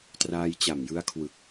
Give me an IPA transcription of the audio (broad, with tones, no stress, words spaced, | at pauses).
traː˧jt͡ɕa˨˩mjɯ˦˥a̯kʰwɯ˨˩k̚